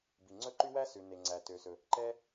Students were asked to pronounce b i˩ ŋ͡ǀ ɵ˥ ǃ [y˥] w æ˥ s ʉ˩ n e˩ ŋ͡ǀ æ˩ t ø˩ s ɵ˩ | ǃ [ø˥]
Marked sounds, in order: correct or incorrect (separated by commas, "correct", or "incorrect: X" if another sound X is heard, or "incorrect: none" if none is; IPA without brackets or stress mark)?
correct, incorrect: ɛ˥